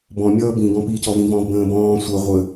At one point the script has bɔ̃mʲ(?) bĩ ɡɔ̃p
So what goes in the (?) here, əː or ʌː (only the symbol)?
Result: ʌː